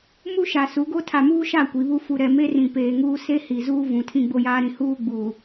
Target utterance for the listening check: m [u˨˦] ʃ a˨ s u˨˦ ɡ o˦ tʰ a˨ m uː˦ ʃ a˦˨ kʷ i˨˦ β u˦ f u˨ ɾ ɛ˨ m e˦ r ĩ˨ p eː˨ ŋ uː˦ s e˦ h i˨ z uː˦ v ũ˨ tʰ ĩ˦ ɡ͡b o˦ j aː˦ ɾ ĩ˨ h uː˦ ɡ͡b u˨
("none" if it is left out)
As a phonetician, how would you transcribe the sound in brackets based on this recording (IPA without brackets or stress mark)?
u˦